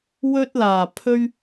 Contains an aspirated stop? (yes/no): yes